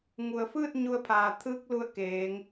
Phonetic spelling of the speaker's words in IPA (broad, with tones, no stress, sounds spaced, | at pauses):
ŋ u˩ ə̯ f ɯː˥˨ t̚ ɲ u˧ ə̯ pʰ aː˩ t̪ʰ ɯː˧ k̚ l u˧˩ ə̯ k eː˩˧ ŋ